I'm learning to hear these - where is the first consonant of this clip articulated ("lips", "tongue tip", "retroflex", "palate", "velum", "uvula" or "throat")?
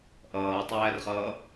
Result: throat